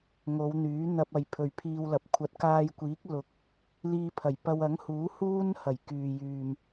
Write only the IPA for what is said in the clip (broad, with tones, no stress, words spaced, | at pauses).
ŋo˨˧wn̪yː˨˥ n̪ɐ˧p̚ ɐ˨jpʰɵ˨ɥpʰiː˧wlɐ˨˥p̚ kʷʰɐ˨˥t̚kaː˧jkʷiː˨˥k̚ lʊ˨k̚ | liː˧pʰɐ˨˩jpɐ˧w ɐ˨˥ŋhuː˨˥ huː˥n hɐ˨˩j kyː˨jyː˨m